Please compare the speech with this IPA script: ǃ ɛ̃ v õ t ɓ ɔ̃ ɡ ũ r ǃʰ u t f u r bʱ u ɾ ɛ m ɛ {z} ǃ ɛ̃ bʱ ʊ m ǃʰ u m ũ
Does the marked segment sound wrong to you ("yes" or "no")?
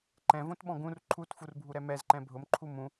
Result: no